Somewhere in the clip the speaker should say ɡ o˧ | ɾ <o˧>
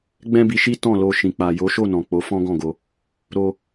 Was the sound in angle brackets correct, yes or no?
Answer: yes